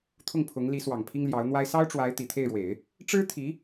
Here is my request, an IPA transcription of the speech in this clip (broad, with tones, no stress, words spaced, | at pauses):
t̪ʰʊ˥˩ŋpʰʊ˧˥ŋli˧˥swɑ˨˩ŋ pʰi˥ŋljɑ˧˥ʊ̯n̪wa˥ɪ̯ sɑ˥ʊ̯ʈ͡ʂwa˧˥ɪ̯ t̪i˨˩t̪ʰe˥˩ɪ̯ɻwe˨˩˦ɪ̯ | ʈ͡ʂɻ̩˥t̪ʰi˧˥